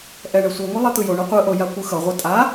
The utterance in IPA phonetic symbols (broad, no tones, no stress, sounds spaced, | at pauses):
ʔ ɛ ɳ ɛ sʷ i ŋʷ i lˠ e t̪ ɯ j o ɳ u qʷ ɯ ʔ o j a kʷ ɯ x ʌ ʁʷ ɯ tʼ a